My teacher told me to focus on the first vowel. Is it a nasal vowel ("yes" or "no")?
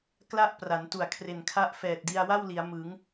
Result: no